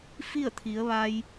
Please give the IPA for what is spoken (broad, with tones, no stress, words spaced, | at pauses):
fi˥˨ə̯t̪ʰi˩˧ə̯ʋa˧j